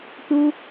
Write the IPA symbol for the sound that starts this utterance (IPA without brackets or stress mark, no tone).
t